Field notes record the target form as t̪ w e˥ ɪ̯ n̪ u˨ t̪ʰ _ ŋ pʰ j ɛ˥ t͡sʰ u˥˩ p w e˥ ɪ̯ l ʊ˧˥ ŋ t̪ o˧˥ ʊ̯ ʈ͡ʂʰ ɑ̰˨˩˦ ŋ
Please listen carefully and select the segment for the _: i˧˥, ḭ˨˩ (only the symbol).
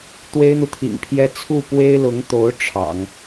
ḭ˨˩